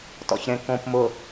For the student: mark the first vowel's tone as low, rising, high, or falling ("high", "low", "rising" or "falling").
low